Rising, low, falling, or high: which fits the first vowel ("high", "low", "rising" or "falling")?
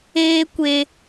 high